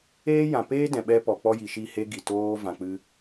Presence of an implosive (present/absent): present